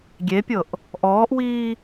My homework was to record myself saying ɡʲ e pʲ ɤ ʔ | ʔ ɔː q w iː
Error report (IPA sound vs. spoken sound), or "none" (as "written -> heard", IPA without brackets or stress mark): q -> ʔ